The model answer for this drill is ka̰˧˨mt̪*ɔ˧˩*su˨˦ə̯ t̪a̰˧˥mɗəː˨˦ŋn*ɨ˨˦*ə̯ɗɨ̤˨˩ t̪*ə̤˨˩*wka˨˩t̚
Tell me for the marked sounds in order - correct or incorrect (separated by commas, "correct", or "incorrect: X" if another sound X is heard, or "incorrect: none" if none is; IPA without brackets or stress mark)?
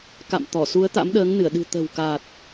correct, incorrect: ɨ˧˩, correct